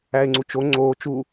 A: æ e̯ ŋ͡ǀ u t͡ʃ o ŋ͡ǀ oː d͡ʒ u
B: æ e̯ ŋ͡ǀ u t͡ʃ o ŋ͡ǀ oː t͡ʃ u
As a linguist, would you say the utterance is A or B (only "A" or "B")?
B